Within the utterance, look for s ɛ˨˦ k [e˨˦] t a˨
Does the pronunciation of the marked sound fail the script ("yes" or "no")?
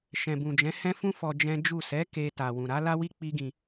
yes